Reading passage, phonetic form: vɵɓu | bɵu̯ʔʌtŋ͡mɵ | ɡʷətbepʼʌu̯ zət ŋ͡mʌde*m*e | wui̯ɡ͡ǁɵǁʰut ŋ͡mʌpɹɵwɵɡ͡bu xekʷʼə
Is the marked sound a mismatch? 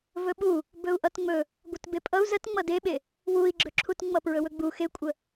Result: yes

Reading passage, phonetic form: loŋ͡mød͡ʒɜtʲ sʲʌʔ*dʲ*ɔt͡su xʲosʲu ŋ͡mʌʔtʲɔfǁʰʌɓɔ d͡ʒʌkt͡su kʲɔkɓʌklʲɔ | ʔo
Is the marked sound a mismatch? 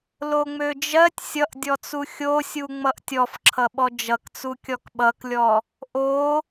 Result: no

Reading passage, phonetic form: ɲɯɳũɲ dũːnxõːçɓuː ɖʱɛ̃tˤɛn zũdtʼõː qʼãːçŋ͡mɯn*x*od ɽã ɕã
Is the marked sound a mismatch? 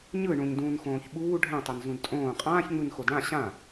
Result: no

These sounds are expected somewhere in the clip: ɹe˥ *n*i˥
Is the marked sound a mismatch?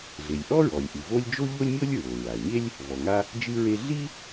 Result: yes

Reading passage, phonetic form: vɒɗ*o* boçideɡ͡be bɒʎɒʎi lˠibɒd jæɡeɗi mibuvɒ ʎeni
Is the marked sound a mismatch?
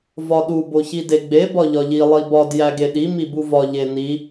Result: yes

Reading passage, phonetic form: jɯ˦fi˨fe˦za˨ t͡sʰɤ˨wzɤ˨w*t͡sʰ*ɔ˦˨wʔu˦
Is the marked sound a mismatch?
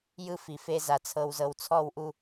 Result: no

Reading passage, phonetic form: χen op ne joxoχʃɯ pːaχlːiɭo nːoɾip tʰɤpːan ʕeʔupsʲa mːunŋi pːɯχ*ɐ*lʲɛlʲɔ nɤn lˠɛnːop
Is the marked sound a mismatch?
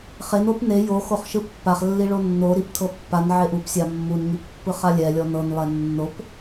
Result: yes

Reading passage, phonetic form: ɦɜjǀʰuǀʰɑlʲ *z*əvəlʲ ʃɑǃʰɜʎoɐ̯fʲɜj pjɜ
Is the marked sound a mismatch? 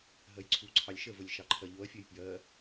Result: yes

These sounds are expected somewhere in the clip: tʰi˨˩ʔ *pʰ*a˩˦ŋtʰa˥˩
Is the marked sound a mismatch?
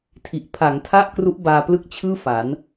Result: no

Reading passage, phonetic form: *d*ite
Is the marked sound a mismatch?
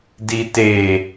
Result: no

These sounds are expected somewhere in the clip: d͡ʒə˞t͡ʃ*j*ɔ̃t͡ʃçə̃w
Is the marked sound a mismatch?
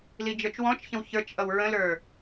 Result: yes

